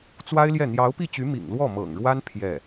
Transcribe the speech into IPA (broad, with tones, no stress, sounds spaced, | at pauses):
t͡s w a˥ ɪ̯ l j ɛ˥˩ n̪ j ɑ˧˥ ʊ̯ p i˥˩ t͡ɕ y˧˥ m ḭ˨˩ ŋ l w ɔ˥˩ m ɤ̰˨˩ ŋ ɻ w a˥ n pʰ j ɛ˥˩